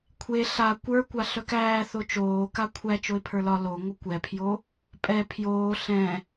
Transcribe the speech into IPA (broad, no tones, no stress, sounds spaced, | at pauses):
kʷʰ e ɬ a kʷ ə˞ kʷ a ɬ œ k æː θ o t͡ʃ oː k a kʷʰ æ t͡ʃ o ɪ̯ pʰ ə˞ l ɒ l o ŋʷ ə kʷ ɛ pʰ j o | pʼ ɛ pʰ j oː ɬ ɛ̃